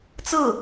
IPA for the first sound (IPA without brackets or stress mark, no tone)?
t͡s